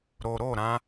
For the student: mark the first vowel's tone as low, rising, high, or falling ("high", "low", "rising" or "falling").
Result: low